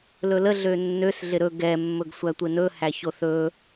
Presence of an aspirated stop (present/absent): absent